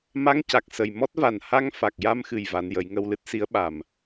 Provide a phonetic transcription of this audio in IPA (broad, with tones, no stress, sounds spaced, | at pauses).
m a˧˥ ŋ c a˨˩ k̚ s ə˨˩ j m ɔ˦˥ t̚ v a˨˩ n h a˧ ŋ f a˨˩ k̚ j a˧ m x ɨ˨˩ j v a˧˥ n j ə˧˥ j ŋ ə˧ w l ɨ˦˥ t̚ s i˧˥ ə̯ ɓ a˨˩ m